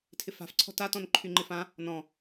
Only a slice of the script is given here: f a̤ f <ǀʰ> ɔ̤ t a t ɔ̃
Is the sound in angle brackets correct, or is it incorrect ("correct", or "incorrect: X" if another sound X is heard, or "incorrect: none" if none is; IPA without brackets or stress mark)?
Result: correct